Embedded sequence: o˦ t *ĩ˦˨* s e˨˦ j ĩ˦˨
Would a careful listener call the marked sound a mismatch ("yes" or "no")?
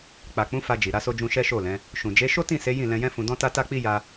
no